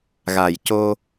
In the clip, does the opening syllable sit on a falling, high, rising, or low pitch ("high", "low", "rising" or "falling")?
low